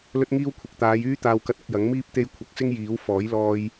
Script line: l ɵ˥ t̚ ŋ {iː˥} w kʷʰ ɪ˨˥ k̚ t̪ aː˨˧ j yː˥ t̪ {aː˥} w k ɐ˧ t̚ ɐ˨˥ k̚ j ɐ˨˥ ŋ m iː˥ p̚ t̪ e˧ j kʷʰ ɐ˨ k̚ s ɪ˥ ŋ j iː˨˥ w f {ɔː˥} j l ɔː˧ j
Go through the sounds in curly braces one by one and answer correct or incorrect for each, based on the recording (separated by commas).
correct, incorrect, incorrect